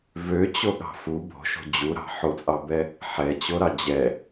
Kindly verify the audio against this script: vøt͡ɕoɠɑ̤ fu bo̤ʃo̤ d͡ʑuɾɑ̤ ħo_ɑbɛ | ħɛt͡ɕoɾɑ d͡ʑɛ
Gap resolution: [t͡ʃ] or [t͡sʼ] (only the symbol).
t͡sʼ